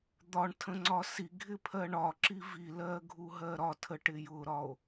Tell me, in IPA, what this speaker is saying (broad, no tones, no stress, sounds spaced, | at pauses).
d̪ ɒ ɳ tʰ ə̃ ŋ͡ǀ ɒ s i ɡʱ ɪ pʰ ɜ ɳ ɒ ǁ i v i l ɜ ɡʱ u ɦ ɜ ɾ ɒ tʰ ə ʈ ɪ j ʊ ɾ ɒ o̯